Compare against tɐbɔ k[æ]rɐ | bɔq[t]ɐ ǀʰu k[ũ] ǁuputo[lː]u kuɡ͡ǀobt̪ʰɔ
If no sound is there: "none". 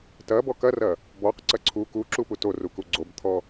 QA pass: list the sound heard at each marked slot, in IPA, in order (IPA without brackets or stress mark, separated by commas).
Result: ɐ, ǀ, u, r